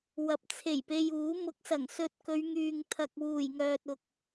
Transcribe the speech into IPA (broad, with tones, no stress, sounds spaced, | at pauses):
w ɐ˨ p̚ t͡sʰ e˨˩ j p e˧ j uː˨˥ m ʊ˨˥ k̚ s ɐ˨˩ ŋ s ɵ˧ t̚ k ɵ˨˧ ɥ ŋ yː˨ ŋ t̪ʰ ɐ˨ k̚ w uː˨˩ j ŋ œː˨ t̚ ʊ˨ k̚